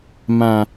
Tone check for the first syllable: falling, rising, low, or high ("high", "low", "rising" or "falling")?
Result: low